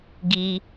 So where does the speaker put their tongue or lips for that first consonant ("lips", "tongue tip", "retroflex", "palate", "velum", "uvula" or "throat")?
velum